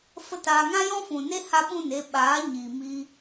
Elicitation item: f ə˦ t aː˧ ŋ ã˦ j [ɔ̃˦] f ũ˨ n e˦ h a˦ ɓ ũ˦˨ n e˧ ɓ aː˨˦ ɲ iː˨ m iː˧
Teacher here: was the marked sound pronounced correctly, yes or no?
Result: yes